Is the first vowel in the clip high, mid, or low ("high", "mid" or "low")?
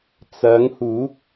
low